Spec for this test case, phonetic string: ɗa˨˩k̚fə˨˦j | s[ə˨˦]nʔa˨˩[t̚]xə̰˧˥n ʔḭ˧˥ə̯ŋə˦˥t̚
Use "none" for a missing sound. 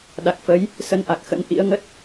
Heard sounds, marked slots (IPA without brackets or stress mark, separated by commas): ə˧, k̚